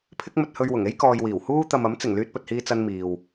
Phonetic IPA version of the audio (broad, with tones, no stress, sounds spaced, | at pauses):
pʰ ɪ˥ k̚ m ɵ˧ t̚ h ɵ˧ ɥ w ʊ˨˩ ŋ e˥ j k ɔː˨ j w iː˨˩ w h uː˥ t̪ ɐ˨ m ɐ˨˥ m t͡s ɪ˨˩ ŋ l yː˧ t̚ p ɵ˨ t̚ h iː˧ t͡s ɐ˧ n m iː˨ w